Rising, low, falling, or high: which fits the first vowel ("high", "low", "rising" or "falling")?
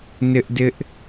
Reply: high